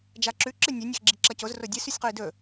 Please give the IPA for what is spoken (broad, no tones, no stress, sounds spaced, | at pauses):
d͡ʒ a ǁ ʉ ǁ ɨ nʲ e nʲ a x ɡ͡ǁ i ǁ ɐ c o z r o dʲ ɨ s ʉ sʲ q o i̯ d ɵ